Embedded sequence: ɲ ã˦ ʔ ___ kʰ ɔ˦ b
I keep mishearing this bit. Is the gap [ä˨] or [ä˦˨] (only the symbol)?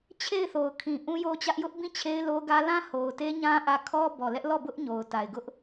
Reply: ä˦˨